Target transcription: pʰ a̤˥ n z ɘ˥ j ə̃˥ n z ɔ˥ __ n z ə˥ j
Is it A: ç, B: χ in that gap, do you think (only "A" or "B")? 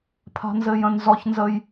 A